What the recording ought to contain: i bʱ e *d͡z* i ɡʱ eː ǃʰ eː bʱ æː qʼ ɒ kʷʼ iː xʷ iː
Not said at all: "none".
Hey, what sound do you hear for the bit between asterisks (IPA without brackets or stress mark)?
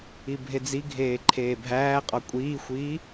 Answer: d͡z